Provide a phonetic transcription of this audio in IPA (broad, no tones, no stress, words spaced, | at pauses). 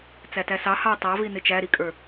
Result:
t͡sætæsɑ hɑ tˤɑvi nɪt͡ʃæɾikʼə˞